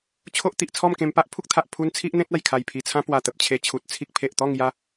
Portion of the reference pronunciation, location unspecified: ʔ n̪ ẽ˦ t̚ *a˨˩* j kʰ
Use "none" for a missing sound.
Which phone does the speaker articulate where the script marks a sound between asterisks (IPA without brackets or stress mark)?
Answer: a˨˩